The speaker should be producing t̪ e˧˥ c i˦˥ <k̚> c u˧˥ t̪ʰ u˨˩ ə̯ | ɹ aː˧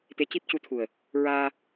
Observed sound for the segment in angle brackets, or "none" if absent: p̚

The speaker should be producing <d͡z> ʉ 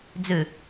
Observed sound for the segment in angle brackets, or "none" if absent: d͡z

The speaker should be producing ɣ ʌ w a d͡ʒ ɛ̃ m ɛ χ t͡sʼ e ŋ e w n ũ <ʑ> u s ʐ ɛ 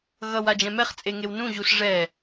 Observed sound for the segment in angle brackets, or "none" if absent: ʑ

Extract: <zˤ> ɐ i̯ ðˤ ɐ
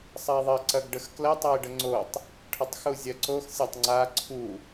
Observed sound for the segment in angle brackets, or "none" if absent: sˤ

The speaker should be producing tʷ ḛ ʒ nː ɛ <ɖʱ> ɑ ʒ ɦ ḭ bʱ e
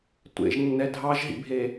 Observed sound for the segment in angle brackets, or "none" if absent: dʱ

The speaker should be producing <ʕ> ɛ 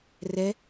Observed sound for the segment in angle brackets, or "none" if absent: r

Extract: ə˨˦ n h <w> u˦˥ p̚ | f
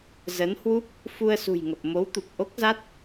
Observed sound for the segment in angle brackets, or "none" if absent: w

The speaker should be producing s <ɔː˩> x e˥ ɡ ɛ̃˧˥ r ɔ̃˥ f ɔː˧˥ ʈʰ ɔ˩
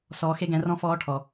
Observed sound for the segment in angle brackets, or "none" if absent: ɔː˧˥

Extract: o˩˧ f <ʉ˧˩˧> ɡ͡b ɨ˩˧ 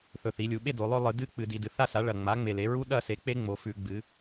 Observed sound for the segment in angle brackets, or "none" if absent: ʉ˧˩˧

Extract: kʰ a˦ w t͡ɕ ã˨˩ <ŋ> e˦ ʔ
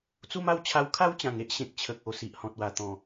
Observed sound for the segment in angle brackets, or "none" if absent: ŋ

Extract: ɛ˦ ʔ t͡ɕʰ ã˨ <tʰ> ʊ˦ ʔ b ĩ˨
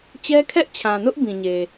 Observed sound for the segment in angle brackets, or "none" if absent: n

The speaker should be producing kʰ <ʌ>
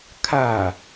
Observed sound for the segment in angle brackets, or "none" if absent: a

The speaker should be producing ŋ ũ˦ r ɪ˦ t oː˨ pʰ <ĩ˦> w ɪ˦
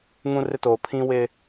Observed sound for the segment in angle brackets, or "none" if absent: ĩ˦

